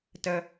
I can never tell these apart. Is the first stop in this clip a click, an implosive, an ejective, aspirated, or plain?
plain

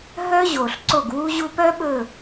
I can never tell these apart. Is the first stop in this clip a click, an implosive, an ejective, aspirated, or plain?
click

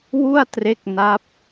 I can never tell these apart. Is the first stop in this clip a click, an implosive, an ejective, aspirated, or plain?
plain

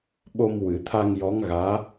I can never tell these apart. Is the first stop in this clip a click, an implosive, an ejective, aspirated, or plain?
implosive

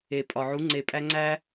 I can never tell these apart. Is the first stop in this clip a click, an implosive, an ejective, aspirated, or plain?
ejective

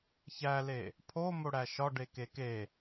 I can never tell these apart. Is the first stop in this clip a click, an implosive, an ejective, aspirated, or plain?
aspirated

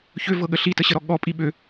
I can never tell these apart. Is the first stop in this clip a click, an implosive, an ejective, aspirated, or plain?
implosive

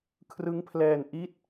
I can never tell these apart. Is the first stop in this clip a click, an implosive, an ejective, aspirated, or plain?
aspirated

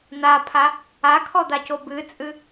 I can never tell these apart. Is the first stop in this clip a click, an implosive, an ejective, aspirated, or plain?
aspirated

